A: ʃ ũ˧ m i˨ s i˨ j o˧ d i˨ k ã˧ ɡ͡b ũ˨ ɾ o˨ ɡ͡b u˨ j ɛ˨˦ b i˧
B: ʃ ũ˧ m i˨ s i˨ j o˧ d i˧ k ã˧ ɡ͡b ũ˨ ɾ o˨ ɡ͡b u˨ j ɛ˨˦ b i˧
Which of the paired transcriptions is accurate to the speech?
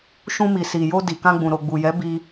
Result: A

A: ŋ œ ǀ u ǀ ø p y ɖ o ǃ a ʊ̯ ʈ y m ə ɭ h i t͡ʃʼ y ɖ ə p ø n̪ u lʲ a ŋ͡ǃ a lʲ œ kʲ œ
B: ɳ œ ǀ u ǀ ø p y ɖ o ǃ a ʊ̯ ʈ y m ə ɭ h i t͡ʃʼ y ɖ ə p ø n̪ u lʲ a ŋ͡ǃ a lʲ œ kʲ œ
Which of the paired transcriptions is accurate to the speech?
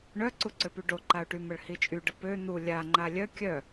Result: B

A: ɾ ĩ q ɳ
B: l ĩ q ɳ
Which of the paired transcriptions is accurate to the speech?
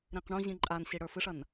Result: A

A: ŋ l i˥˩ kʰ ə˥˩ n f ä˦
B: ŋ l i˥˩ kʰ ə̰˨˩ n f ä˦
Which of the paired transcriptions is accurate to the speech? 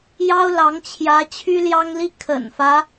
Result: B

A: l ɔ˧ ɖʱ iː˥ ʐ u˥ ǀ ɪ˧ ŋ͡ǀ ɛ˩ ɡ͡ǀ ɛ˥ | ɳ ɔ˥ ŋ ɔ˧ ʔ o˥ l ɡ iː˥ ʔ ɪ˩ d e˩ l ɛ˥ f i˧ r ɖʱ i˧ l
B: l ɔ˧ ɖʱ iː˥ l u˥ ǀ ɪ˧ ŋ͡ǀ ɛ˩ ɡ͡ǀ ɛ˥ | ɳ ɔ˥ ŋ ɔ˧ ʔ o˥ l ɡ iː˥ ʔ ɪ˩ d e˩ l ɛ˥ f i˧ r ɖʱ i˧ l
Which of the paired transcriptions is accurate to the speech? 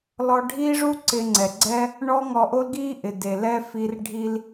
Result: A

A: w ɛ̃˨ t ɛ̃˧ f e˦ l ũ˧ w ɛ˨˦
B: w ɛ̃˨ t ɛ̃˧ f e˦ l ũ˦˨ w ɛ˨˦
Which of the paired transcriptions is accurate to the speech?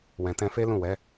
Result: B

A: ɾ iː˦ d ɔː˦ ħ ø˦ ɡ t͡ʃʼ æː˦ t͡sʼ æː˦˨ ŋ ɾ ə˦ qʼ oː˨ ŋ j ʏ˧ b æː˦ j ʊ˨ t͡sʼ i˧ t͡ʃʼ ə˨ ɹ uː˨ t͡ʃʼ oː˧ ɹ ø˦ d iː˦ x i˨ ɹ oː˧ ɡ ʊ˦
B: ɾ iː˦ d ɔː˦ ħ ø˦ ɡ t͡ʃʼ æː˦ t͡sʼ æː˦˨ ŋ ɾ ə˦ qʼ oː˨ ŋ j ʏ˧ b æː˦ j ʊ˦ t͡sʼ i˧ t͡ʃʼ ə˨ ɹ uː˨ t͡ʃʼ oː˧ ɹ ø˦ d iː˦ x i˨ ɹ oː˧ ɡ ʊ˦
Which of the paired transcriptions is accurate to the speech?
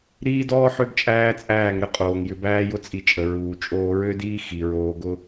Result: B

